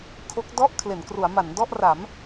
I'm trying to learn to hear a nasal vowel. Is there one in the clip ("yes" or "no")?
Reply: no